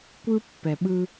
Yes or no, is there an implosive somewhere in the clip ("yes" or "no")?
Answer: yes